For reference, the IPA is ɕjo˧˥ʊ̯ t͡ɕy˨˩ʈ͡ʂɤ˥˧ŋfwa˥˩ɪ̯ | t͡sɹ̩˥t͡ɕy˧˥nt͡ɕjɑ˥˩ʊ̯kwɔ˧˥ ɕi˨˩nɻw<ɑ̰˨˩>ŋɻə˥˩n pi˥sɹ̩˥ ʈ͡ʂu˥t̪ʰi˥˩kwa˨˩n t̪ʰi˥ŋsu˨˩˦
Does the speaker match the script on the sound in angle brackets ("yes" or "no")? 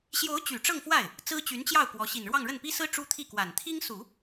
no